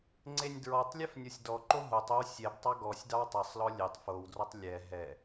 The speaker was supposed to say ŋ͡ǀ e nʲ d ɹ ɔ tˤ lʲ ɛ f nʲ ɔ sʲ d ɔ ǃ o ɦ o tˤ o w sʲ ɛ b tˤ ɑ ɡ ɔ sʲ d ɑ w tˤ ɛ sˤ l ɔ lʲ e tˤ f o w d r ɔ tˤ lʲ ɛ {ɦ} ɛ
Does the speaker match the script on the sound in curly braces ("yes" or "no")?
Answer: yes